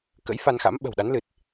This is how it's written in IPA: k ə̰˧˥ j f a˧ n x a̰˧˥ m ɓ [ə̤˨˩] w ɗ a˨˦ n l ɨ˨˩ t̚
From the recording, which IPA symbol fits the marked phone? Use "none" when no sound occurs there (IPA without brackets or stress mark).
ə̤˨˩